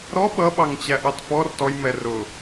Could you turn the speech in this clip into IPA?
ɾ ɔ ɓ ʌ ɓ ɑ ŋ t͡ɕ æ ʔ ɑ t f ɔ r t ɔ j m ɛ r ʊ

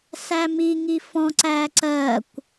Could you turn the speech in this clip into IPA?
s æ m i ŋ i f ɔ̃ ǀ æː ǀ ɜ kʷ

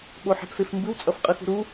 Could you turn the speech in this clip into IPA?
ɓ o ħ ɛ̤ p f e f m b ɯ w t͡sʼ ʌ f qʼ ɯ x ṳ ɾ u

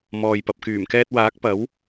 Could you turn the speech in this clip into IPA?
m ɔː˨ j p ɐ˨ p̚ k yː˨˩ m k ɛː˧ t̚ w aː˨˥ k̚ p ɐ˨˥ w

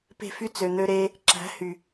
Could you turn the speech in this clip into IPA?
p e̤˦˨ f y˦ t͡s ø˨ n̪ ø˧ ɾ eː˧ | ǁ æ̤˨˦ h y˨

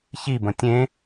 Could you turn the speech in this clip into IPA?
ç i b ə̃ tʲ ẽ

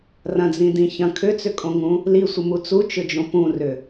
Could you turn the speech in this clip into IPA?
r ɐ̃ d͡z ĩ d ĩ ç ɐ̃ kʰ ʏ t͡s ʏ kʼ õ ŋ ũ | l i sʷ ɪ m u t͡s u t͡ʃ ʏ d͡ʒ õ p ũ r ʏ

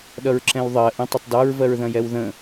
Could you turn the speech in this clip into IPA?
ɗ ʌ ɹ ǁ ɛ̃ w ðˤ ɜ ʔ ə̃ tˤ ə tˤ d ɑ ɹ v ɜ ɹ ð ɐ̃ j ɛ w ð ə̃

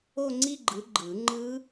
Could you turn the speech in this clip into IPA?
o˥˧ ŋ͡ǀ i˥˧ ɡ͡ǃ ɯ˨˦ ɡ͡ǃ ɯ˨˩˦ ŋ͡ǃ ɯ˦˥

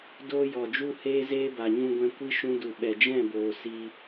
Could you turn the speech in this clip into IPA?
d oː˧ j ɔ˨ d͡ʒ u˧ h eː˧ z eː˦ b a˨ ɲ ũ˧ ɡʷ ɛ̃˧ kʷ i˦ ʃ ũ˧ d u˨ ɓ ɛ˨ d͡ʒ ɛ̃˦˨ b oː˨ s i˧

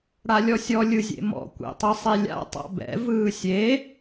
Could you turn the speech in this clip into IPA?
ɽ a lʲ ɔ sʲ ɔ lʲ ɯ zʲ ḛ m ɔ̰ kʷ ḛ tˤ ɯ sˤ i lʲ a̰ tˤ a̰ b ɛ̰ v ɯː sʲ e

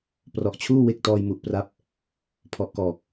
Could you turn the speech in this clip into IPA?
p r ɔ˨˩ ʔ t͡ɕʰ uː˥˩ w e˦˥ k̚ t ɔː˧ j m u˨˩ ʔ p r a˦˥ p̚ | pʰ ɔ˨˩ ʔ k ɔː˨˩ k̚

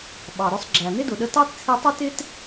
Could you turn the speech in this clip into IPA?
ɓ ɑ˩ ɾ ʊ˧ sˤ ɡ͡ǁ æ˩ n̪ ɪ˥ d ʊ˩ ɗ ə˧ t ɑ˥ t t͡sʰ i˧ tˤ ʊ˥ t ɪ˥ t

